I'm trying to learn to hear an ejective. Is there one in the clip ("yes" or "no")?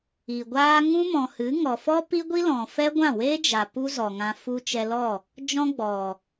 no